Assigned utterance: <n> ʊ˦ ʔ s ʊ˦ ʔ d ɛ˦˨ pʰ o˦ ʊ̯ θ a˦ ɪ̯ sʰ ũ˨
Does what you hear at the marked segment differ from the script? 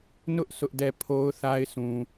no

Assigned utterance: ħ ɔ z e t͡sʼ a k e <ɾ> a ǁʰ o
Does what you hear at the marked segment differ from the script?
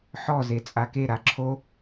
no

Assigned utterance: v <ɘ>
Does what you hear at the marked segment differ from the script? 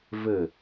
no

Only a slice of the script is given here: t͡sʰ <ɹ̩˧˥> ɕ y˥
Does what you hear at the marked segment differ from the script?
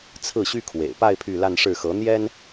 yes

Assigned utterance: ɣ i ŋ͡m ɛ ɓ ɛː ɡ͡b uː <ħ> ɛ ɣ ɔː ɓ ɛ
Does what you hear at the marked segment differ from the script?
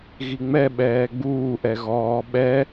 yes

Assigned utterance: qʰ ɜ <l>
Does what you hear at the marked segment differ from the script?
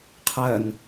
yes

